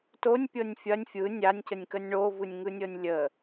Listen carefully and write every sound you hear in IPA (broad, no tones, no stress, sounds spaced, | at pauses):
t o nʲ pʲ ɤ nʲ fʲ ɐ nʲ fʲ ɯ nʲ a nʲ c ə nʲ k ə nʲ ɳ o v ɯ nʲ ŋ ɯ nʲ ɤ nʲ lʲ ə